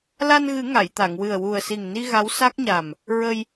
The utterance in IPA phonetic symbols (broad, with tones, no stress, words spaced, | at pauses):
la˧nɣɨ˨˩˦ ŋa˨˩˨jt̪a˨˩˨ŋwɨ˨˩ə̯ wu˨˩ə̯si˨˩ŋni˧ ɣa˧˥wsa˦˥k̚ɲa˨˩m | ɹə˧j